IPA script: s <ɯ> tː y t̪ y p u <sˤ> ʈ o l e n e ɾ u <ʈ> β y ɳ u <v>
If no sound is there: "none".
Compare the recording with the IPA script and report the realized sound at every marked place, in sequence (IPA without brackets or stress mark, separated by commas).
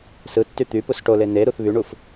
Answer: ɯ, s, θ, f